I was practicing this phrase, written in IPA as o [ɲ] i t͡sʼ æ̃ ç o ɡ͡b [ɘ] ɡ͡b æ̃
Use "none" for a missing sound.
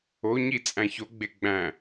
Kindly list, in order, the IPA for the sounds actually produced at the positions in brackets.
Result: ɲ, e

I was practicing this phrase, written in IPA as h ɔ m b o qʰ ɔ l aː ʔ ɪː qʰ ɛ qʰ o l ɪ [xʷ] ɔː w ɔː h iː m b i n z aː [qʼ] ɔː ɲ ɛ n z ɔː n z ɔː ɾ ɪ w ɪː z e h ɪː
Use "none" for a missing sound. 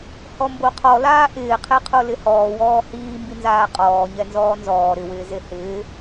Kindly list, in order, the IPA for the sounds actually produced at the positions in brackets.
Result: h, qʼ

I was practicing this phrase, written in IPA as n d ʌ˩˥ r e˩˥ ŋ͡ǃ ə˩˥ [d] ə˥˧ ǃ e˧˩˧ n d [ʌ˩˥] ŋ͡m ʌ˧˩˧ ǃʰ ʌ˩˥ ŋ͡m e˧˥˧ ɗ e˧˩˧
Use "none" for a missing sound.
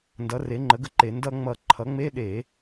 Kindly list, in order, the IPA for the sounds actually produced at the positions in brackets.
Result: ɡ, ʌ˧

